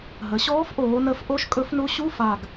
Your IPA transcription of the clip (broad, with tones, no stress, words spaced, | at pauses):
ɦə˩˧ ɕɔː˧˥fʔoː˩˧ nə˧˥f ʔo˧˥ʃ kʼɵ˧˥fnu˧˥ ɕu˧˥˧fa˨˩ɡ